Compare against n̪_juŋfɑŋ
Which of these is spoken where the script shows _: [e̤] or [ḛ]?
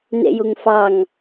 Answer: ḛ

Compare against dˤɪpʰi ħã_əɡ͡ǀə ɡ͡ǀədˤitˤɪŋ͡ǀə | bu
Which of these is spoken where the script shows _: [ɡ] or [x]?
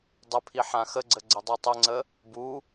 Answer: x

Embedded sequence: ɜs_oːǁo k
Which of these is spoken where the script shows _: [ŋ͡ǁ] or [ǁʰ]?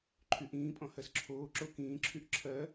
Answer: ǁʰ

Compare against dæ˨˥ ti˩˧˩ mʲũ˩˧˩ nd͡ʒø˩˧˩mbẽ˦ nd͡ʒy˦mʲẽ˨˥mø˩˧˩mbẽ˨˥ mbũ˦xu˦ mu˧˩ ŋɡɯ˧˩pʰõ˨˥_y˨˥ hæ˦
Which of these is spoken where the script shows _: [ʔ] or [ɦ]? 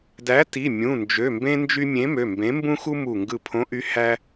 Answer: ʔ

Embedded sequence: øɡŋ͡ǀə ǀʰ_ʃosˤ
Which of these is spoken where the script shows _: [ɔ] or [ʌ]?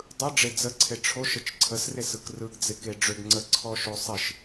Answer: ɔ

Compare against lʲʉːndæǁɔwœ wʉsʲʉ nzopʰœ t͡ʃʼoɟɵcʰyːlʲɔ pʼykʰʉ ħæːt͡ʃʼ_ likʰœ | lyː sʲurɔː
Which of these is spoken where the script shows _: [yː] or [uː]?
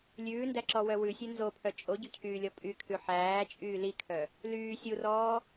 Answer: yː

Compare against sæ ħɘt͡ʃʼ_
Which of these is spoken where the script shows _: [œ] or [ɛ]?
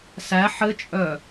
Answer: œ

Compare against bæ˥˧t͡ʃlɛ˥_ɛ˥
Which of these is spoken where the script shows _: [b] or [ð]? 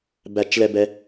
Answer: b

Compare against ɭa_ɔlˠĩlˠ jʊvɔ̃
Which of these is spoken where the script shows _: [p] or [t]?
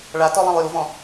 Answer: t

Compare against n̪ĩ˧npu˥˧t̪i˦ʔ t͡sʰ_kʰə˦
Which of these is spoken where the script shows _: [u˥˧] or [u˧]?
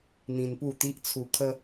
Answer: u˧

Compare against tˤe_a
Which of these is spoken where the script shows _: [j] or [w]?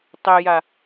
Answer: j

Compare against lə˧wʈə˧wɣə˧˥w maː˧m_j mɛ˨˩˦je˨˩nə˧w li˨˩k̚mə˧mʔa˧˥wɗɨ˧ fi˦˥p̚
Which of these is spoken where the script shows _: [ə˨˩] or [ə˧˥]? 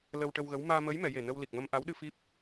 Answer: ə˧˥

